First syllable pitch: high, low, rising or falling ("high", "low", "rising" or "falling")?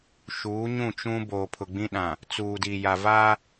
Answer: rising